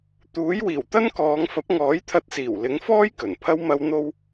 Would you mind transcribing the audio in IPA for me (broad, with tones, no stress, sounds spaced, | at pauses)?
t̪ uː˨˥ j w iː˨˩ w t̪ ɐ˥ n k ɔː˨˧ ŋ f ɐ˨˥ p̚ ŋ ɔː˨˥ j t̪ʰ ɐ˧ t̚ s iː˨˩ w l ɪ˨˥ ŋ f ɔː˥ j k ɵ˨˩ n pʰ ɐ˥ w m ɐ˧ w n̪ o˧ w